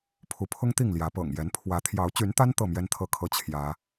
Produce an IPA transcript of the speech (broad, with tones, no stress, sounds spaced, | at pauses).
pʰ u˨˦ pʰ ʊ˦ ŋ t̪ i˥˨ ŋ l j ä˨˦ p ɤ̰˨˩ ŋ j ɛ˨˦ n pʰ w ä˨˦ t̪ʰ j ɑ˨˦ ʊ̯ t͡ɕ y˨˦ n t̪ a˦ n t̪ ɤ˥˨ m j ɛ˦ n t̪ʰ ɤ˥˨ kʰ ɤ˦ t͡ɕʰ j ä˨˦